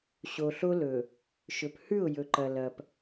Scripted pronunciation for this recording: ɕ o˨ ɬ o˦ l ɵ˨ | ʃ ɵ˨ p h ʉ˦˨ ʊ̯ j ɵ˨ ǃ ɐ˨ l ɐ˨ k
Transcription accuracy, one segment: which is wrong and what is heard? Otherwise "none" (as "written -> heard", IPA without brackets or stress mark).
k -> p